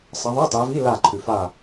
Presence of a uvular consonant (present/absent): absent